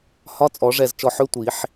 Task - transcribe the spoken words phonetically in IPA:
hɒ˧˥˧t͡sʼɔ˨˩˦ʐɛ˧˩z t͡ʃɔ˧˩ħø˧˥˧ tʷi˨˩˦ħ

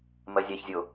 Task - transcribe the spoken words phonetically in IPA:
mɜzʲaçzʲo

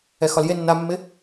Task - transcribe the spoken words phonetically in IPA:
ɛxɒlje nːamːɪ

